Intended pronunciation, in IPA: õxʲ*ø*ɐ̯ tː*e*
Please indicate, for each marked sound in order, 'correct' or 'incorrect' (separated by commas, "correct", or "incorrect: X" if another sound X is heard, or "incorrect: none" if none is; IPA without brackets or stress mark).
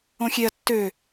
incorrect: e, incorrect: ø